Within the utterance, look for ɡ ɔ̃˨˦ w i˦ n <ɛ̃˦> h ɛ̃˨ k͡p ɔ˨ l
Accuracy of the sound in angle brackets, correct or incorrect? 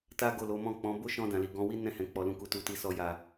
incorrect